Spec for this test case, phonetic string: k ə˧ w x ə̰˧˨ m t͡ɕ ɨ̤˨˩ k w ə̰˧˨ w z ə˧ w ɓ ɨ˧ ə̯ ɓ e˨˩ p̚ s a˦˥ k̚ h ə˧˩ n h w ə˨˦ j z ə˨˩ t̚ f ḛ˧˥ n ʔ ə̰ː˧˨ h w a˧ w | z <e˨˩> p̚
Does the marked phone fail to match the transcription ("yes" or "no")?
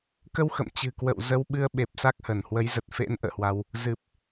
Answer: yes